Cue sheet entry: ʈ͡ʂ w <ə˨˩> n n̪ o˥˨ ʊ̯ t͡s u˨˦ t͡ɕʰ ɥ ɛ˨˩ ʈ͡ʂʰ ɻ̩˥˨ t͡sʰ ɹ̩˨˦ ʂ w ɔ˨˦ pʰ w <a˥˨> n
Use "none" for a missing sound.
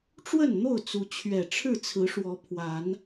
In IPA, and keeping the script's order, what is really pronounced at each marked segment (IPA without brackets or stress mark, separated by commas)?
ə˥˨, a˨˦